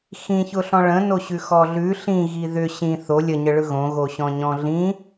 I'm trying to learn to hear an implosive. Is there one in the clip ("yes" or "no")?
no